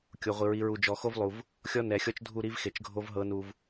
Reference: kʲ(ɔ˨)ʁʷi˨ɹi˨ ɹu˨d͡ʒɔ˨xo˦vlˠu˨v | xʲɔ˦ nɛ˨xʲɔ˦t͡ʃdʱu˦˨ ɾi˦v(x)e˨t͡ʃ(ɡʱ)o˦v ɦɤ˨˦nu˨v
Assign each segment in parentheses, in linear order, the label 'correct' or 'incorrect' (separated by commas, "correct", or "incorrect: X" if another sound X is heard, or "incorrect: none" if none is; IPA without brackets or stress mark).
incorrect: o˨, correct, correct